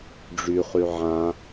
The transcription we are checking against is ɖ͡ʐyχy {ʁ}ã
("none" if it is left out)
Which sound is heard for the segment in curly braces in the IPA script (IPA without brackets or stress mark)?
ʕ